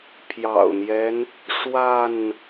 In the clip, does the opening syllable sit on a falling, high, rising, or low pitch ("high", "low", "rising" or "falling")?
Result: low